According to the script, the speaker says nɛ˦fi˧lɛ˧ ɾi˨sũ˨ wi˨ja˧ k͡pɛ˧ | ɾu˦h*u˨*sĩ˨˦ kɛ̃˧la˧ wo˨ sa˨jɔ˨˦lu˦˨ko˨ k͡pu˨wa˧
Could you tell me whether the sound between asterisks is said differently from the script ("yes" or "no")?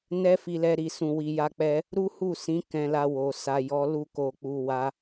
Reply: yes